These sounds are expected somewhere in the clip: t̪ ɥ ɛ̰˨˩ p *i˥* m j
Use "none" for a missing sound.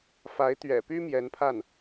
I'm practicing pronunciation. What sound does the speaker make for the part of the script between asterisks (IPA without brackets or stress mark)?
y˥